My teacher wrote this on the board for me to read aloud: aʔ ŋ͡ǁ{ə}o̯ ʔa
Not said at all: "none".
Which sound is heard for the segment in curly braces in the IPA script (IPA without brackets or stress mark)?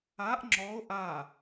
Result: ɔ